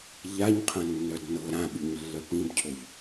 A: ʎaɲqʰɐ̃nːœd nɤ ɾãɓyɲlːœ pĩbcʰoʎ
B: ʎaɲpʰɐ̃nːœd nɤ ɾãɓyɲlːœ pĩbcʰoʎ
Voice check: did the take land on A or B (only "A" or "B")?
A